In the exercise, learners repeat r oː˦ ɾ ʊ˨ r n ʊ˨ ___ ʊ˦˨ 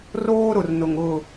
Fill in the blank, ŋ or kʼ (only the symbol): ŋ